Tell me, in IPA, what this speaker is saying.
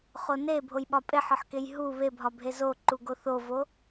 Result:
χone bʱojɓɒpʼeħ ɒħkejɦu βebʱɒbʱe zo ǃuɡoθovo

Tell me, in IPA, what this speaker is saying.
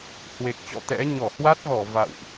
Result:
hwe˨˩k̚t͡ɕɔ̰˧˨ t̪ɛ̰˧˥ ɲɔ˧˩hwa˦˥t̚ɣɔ˧˩ va̰˧˨wʔ

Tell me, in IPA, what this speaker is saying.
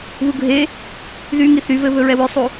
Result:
βuɡʱe | ðyŋi θyvɘ βɵɹɛwʏsˤu

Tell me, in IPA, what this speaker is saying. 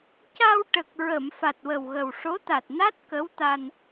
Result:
ca˧wʈə˨˩k̚ ɹə˨˩˨m fa˨˩t̚wə˨˩wɣə˨˩w ʂo˧˥t̪a˨˩t̚na˦˥t̚ kə˧˥wt̪a˧n

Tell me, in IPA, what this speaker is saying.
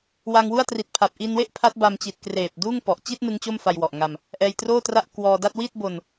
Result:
wa˧ŋwu˥˩a̯ tri˨˩t̚ pʰa˨˩p̚ ʔi˧nwe˥˩ʔ pʰa˦˥t̚ba˧mt͡ɕi˨˩t̚ kreː˨˩p̚ duː˥˩ŋ pɔ˨˩ʔ t͡ɕi˥˩t̚ nɯ˦˥ŋt͡ɕo˥˩mfa˧jwɔ˨˩ʔ ŋa˧m | ʔɛː˧jtroː˥˩tra˥˩ʔ kwɔː˧da˥˩t̚ wi˥˩t̚bo˧n

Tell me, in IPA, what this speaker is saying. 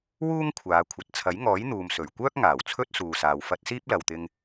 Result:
wuː˥ŋ kʷʰaː˨˧kʷʰɐ˨t̚ t͡sʰɐ˨˥jŋɔː˨˥jn̪uː˨m sɵ˨˩ɥkʷœː˥k̚ ŋaː˨˩wt͡sʰɵ˥t̚suː˨ saː˨w fɐ˧t̚siː˥p̚lɐ˨w t̪ɪ˧ŋ

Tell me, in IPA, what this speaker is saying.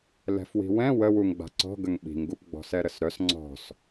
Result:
lɛ̤fwi̤wɛ̃ wəwuŋ ɡ͡ba̤ǀɔ̤ ɡəŋɓi̤ŋɡup ɡ͡bɔ̤sɛɾəsɾœs ŋ͡ǀɔ̤s

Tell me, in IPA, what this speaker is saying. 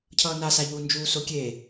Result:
cʰʌːnasaʎuː nd͡ʒuːsokʲe

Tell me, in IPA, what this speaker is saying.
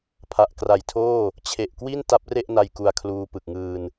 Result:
pʰa˨˩ʔkra˨˩jtʰoː˥˩ | t͡ɕʰe˨˩ʔkwi˥˩n ta˦˥p̚re˥˩ʔna˧j ku˧a̯kʰluː˧ pɯ˨˩k̚ŋɯː˧n

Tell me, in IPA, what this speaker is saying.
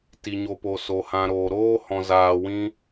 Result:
ti˨ ɲo˨po˨ so˨hã˨ ɾoː˨ɾoː˦ hɔ̃˨zaː˨wĩ˧

